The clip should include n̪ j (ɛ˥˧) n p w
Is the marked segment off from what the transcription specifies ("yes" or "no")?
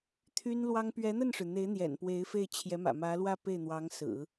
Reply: yes